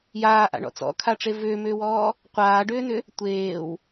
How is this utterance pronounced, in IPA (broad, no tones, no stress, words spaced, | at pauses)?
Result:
jaːʔa̰ɳɔ̰ t͡sɔ̰kʰaʈ͡ʂe vʏːmʏːwɔː | qʷaːɖʏːnʏ | tʷeːw